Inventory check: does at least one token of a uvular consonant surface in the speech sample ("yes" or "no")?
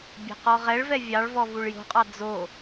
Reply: yes